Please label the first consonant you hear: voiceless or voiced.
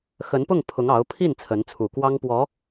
voiceless